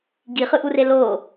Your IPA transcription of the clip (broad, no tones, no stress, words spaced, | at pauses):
ɡiχɯʔure lo